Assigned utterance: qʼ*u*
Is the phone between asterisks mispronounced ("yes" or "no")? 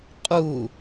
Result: no